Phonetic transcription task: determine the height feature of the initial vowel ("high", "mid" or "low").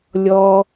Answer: mid